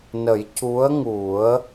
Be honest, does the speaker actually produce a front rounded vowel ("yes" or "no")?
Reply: no